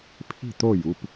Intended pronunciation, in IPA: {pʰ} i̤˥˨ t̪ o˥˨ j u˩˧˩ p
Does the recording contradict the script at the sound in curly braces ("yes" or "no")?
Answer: no